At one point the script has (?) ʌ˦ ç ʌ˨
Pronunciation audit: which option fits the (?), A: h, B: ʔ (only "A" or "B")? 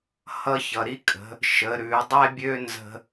A